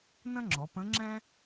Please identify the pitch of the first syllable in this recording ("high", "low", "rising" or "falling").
high